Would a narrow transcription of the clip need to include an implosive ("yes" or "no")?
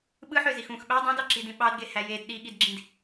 yes